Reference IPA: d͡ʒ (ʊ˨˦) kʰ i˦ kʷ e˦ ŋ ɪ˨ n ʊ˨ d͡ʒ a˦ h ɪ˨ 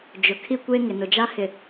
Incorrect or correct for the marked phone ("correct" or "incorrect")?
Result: incorrect